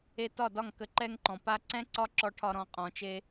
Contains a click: yes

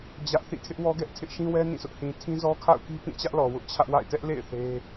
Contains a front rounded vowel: no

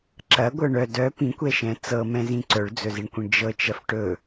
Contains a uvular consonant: no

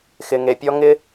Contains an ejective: no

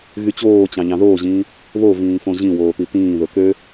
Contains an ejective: no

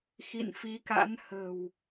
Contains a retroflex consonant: no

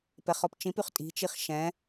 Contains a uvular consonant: yes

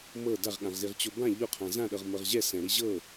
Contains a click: no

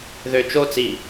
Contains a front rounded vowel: yes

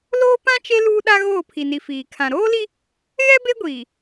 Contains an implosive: yes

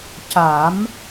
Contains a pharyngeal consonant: no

